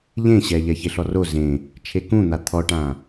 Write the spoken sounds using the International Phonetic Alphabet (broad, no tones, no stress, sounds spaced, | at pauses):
ʎ ẽ ɕ ɛ ʎ ɛ ç e ɬ ɔ r o z ẽ | t͡ʃʰ e k ũ n̪ a t̪ʰ ɔ ʈ ã